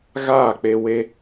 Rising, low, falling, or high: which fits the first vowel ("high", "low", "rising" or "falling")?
falling